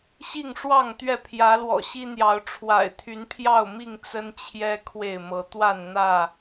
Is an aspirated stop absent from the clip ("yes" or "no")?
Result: no